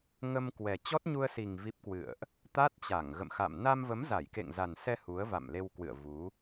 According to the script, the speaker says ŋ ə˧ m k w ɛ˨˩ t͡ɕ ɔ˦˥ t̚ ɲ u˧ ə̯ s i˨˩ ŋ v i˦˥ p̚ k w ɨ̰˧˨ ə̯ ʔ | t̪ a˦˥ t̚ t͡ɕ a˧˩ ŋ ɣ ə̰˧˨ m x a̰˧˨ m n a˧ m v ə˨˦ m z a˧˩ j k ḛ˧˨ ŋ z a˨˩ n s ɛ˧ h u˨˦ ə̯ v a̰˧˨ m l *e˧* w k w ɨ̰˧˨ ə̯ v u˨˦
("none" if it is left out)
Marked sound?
e˧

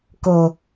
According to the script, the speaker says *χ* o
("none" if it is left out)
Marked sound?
k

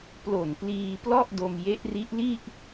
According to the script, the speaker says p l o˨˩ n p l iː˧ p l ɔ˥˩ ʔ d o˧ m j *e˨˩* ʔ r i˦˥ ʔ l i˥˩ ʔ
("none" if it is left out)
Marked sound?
e˦˥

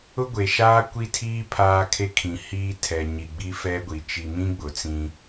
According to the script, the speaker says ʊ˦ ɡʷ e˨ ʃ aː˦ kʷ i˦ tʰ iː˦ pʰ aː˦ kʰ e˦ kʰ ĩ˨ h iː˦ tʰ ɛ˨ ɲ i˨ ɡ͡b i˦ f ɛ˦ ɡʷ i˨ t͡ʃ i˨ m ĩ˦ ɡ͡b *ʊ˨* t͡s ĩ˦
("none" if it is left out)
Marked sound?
ʊ˨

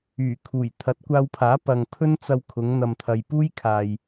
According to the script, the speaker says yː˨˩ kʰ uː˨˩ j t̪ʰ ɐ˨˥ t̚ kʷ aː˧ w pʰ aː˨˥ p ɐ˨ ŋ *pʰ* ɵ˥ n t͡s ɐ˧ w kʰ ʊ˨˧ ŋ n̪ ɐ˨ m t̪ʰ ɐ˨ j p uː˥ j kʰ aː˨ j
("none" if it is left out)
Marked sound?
pʰ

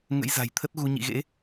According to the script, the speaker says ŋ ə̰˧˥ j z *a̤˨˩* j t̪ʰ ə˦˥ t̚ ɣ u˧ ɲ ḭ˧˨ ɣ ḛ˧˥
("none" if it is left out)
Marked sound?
a̤˨˩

